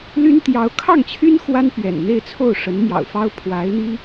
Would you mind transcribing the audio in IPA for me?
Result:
l y˥ n t̪ j ɑ˧˥ ʊ̯ kʰ ɑ˥˩ ŋ t͡ɕʰ y˥ n x w a˥ n p ɥ ɛ̰˨˩ n n̪ e˥˧ ɪ̯ t͡sʰ o˥˩ ʊ̯ ʂ ə˧˥ n m j ɑ̰˨˩ ʊ̯ f ɑ˥ ʊ̯ pʰ w a˧˥ ɪ̯ n̪ i˥

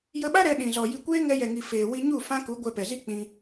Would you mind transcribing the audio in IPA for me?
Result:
j ə˧ ɓ a˦ ɾ ɛ˧ ɗ ĩ˨ z ɔ˨ j i˧ kʷ eː˦ ŋ ɛ˧ j ɛ˨ ŋ i˨ f eː˨ w i˧ ɲ u˦˨ f ã˦ k u˨˦ ɡʷ ɛ˧ p ɛ˨ z i˦ k͡p ĩ˧

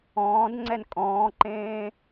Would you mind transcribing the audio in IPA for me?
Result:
ɔ̃ː d ŋ͡ǀ ɛ n kʼ ɔ̃ː ǃ ẽː

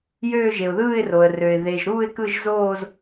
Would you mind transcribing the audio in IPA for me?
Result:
j øː˥˧ ʒ e˩ ʊ̯ ð ɯː˥˧ ɪ̯ r o˩ ə̯ r ø˩ ɪ̯ ð e˩ ʒ ɾ uː˥˧ ɪ̯ k ɯ˥˧ ʒ z oː˥˧ z

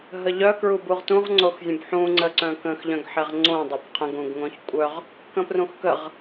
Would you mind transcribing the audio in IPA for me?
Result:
ɦ ə ʎ œ k ɹ u b u ʁ t ũ ʁ ŋ͡ǀ o x zʲ ə̃ b ħ ũ ŋ͡ǀ ə ǀ œ̃ k ə̃ x ʎ œ̃ ɡ ħ ɛ ʁ ŋ͡ǀ õ dˤ o b qʰ ə̃ ɡ ũ ɡ ŋ õ ç kʷʼ œ ʁ | k ə̃ p r ũ x k ə ʁ

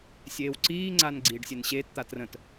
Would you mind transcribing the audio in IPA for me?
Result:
sʲ eː w ǀ iː ŋ͡ǀ a n ɡ͡ǀ iː ɖ sʲ e n ɕ eː t t̪ a t r ə̃ t

